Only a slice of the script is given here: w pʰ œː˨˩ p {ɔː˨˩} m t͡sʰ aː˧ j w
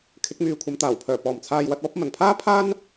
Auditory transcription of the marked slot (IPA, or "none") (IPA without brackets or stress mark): ɔː˨˩